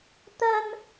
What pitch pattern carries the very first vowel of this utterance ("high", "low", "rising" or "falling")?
high